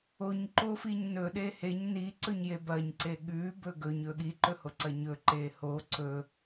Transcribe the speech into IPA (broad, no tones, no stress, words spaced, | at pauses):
oɲ ǃofiɲnɵ ɗeheɲ ni ǀɵɲjebɐɲ ǀeɠʉ bɵɡɵɲ ɵɠi ǃɵhoǀɐɲɵ ǃeho ǀɵ